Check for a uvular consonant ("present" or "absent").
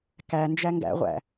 present